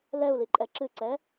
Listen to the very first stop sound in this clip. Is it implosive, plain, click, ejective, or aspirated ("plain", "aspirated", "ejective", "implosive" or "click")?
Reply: click